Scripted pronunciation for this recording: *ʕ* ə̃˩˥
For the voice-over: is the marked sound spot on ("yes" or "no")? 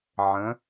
yes